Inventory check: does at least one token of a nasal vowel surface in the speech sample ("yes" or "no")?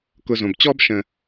yes